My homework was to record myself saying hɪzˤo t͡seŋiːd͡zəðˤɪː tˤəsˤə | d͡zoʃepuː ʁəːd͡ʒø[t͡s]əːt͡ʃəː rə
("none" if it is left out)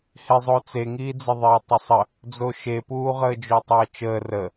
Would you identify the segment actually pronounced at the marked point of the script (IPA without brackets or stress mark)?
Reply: tˤ